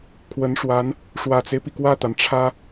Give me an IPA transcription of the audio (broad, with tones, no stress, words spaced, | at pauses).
kʰwə˧˥nʂwa˧˥n | ʂwä˨˩t͡se˦ɪ̯pi˩ kwä˥˩t̪a˩nʈ͡ʂʰä˥